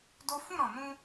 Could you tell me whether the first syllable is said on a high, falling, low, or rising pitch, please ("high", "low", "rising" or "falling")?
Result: high